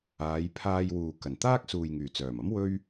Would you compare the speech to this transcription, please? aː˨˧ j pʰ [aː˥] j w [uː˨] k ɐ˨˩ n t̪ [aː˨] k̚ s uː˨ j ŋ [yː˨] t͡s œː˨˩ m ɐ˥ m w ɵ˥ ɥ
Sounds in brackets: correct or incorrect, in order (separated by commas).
incorrect, correct, incorrect, incorrect